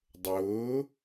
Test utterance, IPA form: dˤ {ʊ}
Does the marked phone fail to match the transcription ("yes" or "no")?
yes